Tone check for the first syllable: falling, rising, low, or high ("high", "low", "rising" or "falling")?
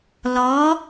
rising